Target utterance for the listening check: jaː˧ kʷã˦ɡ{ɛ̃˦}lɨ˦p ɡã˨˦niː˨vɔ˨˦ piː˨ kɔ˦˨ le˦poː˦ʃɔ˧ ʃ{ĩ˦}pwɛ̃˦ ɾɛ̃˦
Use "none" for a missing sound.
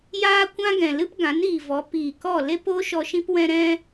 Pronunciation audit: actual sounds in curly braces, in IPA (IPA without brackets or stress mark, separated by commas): ɛ̃˨, ĩ˦